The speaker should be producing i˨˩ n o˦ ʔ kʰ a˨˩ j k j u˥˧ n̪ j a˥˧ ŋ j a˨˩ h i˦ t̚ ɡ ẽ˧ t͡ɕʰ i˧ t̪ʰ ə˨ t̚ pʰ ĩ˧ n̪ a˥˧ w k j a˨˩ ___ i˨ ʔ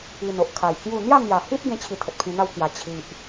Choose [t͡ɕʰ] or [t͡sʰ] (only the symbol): t͡ɕʰ